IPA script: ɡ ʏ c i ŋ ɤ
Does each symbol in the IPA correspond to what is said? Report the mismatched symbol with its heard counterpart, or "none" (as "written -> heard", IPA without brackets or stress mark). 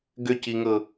none